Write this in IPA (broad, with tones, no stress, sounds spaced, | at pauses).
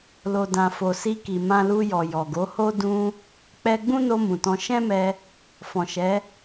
l o˨ d ã˨ f o˨ s i˧ k i˨ m ã˧ l u˧ j ɔ˨ j ɔ˨ ɡ o˨˦ h o˦ d ũ˧ | k͡p ɛ˧ ɡ͡b ũ˦ n o˧ m ũ˨ t ɔ̃˧ ʃ ɛ̃˦ m ɛ˧ | f ɔ̃˨ ʃ ɛ˨˦